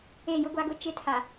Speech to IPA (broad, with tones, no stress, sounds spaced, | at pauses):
e˦˨ j ʊ˦ ɡʷ a˦ ɡ ʊ˦ t͡ʃ ɪ˦ tʰ a˨